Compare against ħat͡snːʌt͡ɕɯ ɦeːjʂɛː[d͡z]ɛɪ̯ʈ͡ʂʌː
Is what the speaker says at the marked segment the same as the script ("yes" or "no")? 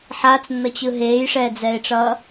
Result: yes